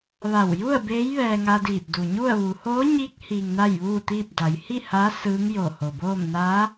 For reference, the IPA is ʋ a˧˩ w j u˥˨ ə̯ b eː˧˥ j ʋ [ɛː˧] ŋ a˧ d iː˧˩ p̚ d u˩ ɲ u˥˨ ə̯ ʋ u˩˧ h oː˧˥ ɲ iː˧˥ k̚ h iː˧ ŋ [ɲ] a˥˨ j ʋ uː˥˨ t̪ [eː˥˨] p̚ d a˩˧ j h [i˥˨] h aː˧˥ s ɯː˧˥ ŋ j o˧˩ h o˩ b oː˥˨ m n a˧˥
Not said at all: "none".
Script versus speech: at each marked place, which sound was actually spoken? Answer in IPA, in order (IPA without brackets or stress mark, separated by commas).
ɛː˧, n, iː˥˨, i˥˨